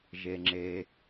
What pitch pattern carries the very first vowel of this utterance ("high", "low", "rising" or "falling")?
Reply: low